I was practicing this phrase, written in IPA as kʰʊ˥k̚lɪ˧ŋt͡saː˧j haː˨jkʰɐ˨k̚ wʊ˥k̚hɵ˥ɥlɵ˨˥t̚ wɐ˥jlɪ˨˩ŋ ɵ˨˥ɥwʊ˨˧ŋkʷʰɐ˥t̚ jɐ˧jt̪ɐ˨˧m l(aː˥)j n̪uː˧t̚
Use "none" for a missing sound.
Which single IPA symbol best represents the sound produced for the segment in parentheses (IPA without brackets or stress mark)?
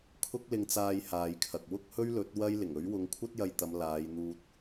aː˨˧